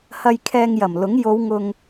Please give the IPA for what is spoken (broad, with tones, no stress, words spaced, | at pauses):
hɐ˧jkʰɛː˧ŋjɐ˨˩mlʊ˨˥ŋ jo˨˧wŋʊ˨ŋ